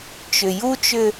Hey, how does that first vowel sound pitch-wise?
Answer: low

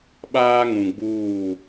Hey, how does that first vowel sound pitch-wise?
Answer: high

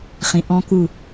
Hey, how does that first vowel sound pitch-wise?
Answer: low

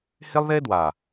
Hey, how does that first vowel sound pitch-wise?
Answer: high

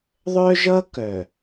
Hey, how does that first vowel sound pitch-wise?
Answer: high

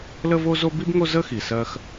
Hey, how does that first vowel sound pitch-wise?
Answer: high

